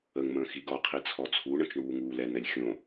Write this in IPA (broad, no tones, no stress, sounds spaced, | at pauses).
ə ŋ m ə̃ː x i ɡ ɔ qʰ i t͡sʰ ɔ t͡sʰ u ɳ ə̃ t͡ʃ ɳ uː ŋ uː l ɛ n̪ ɛ lʲ xʲ õ